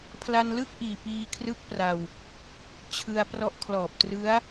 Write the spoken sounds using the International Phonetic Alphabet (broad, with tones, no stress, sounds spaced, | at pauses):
pʰ l a˧ n l ɯ˥˩ k̚ ʔ iː˨˩ p iː˧ kʰ r ɯ˦˥ k̚ p r a˧ w | t͡ɕʰ ɯ˧ a̯ p r ɔ˦˥ ʔ kʰ l ɔː˨˩ p̚ t r ɯ˦˥ a̯